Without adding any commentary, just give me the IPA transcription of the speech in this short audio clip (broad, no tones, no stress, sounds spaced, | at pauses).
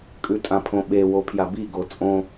kʼ ʉ tʼ ã pʰ õ ɓ e w o pʰ j a b i ɡ o t͡sʼ õ